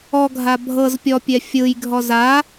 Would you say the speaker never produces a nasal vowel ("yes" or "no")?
yes